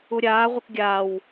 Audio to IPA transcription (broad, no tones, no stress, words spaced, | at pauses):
uɾʲaːʁʷək ɡʲaːw